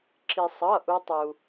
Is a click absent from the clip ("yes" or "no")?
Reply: no